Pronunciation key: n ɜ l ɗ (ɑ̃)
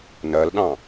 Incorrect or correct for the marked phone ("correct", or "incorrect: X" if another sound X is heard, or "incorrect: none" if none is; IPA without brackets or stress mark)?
correct